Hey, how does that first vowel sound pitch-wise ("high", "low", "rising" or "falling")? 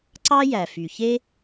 high